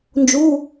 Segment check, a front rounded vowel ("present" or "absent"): absent